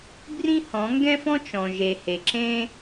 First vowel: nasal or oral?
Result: nasal